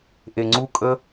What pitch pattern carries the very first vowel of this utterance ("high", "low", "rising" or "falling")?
low